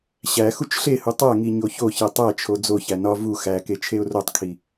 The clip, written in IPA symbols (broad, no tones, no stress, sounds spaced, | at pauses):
ɕ æ x u t͡ʃ ɬ e h u tˤ æ ŋ i ɲ o ç o ç e tˤ æ t͡ʃʰ o d͡z o ç æ n ɒ v u x æ k e t͡ʃʰ e ʊ̯ r o tˤ kʰ i